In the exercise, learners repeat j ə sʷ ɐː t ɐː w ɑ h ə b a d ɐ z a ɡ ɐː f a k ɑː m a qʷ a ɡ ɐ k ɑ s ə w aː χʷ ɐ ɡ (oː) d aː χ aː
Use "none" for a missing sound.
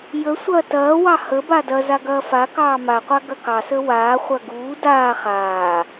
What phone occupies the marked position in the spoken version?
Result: uː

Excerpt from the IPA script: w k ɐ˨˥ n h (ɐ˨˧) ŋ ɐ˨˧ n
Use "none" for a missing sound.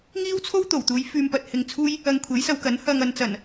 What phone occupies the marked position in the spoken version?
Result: ɐ˧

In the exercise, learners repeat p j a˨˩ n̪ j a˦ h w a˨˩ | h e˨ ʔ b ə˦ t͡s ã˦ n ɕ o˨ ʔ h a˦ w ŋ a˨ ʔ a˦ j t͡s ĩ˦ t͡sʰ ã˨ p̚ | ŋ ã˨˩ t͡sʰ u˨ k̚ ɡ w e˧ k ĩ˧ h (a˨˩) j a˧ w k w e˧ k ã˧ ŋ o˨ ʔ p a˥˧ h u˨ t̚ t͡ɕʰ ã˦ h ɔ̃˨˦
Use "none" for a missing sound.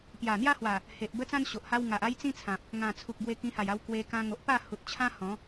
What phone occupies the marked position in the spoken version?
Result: a˨˩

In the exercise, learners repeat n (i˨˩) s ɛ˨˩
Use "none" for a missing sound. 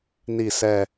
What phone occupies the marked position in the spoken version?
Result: i˨˩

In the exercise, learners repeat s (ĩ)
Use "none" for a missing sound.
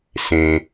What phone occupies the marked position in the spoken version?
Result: ẽ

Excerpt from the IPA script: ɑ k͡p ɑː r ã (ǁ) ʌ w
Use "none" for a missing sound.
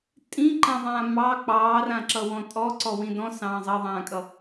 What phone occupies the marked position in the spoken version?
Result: ǁ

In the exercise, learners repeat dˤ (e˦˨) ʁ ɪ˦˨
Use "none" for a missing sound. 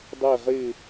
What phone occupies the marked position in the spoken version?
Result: e˦˨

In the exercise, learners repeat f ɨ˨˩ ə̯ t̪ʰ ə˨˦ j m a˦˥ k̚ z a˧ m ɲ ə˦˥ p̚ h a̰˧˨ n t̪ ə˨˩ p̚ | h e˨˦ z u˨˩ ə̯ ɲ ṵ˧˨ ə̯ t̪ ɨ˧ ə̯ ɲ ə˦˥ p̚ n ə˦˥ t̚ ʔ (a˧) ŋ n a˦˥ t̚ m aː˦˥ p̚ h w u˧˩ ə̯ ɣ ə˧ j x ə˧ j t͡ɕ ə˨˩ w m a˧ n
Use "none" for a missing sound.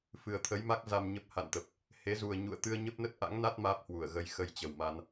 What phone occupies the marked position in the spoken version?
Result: a̰˧˥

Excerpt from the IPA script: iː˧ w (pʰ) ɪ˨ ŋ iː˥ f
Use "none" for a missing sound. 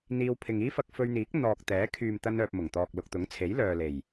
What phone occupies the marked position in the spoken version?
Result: pʰ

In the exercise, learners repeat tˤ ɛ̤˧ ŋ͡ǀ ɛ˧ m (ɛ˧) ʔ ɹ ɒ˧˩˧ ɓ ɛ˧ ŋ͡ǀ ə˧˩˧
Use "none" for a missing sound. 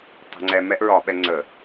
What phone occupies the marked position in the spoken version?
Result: ɛ˧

